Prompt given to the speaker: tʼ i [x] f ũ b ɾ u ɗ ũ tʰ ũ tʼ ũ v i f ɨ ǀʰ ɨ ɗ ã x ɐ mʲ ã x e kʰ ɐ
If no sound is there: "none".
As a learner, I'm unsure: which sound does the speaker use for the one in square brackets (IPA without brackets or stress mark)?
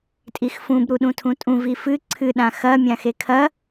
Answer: x